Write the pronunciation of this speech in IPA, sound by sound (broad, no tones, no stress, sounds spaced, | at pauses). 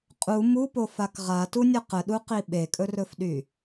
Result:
qʼ u m u p o f a k ʁ a t u nʲ ə q ə ɗ u q i ɓ e kʼ ɵ r ɵ f ɗ y